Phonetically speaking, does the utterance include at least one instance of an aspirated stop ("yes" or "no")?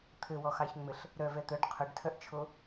yes